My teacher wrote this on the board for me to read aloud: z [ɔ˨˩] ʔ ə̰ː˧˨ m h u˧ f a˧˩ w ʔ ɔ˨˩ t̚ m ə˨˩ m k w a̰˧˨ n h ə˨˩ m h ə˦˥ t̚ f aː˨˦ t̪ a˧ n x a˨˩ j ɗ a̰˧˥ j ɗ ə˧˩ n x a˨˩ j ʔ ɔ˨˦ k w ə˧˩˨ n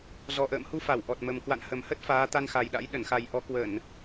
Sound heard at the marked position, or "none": ɔ˨˩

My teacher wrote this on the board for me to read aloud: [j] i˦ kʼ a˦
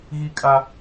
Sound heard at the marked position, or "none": ɣ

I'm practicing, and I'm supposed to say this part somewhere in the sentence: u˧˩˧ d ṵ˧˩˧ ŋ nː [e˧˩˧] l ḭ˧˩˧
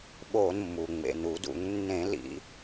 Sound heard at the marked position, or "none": ẽ˧˩˧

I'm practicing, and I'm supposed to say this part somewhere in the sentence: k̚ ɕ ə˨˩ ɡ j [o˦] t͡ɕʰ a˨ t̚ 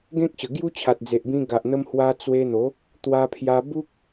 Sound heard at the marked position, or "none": u˦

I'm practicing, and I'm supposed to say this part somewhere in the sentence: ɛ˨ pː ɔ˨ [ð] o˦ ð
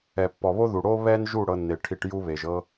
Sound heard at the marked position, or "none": β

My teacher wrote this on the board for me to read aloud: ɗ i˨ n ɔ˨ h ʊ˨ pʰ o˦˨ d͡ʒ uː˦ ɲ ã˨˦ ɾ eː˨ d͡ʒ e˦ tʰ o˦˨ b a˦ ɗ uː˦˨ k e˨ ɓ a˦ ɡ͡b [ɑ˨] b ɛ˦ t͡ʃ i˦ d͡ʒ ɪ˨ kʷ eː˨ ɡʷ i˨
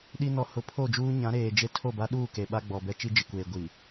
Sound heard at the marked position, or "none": ɔ˨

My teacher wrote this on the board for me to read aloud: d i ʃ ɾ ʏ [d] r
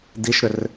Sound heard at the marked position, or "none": none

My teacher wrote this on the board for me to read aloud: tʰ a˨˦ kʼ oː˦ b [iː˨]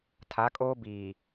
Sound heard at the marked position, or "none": iː˨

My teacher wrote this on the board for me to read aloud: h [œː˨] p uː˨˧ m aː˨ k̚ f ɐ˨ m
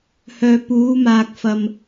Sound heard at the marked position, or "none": œː˨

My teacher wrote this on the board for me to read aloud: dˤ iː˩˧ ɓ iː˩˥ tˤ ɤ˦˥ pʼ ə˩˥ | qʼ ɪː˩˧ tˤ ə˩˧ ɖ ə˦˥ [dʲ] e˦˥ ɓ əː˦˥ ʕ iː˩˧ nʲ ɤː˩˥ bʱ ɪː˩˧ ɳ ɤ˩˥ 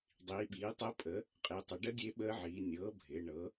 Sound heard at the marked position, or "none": dʲ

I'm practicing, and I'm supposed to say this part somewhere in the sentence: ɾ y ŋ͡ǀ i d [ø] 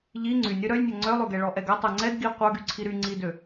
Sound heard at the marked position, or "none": ø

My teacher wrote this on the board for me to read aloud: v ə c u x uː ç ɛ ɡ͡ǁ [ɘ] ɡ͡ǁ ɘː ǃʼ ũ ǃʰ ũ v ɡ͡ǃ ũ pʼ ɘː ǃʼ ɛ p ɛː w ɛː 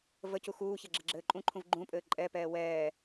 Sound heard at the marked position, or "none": ɘ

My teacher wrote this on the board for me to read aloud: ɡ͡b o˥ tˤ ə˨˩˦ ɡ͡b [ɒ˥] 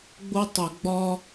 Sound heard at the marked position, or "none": ɒ˥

